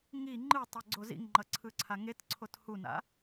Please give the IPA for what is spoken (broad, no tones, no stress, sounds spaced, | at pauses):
ŋ i ŋ͡ǃ ɯ tˤ e ɡ͡ǀ o z ḭ ŋ ŋ͡ǃ ʌ ǀʰ ɯ ǀʰ a ŋ e t ǀʰ o t h u n a̰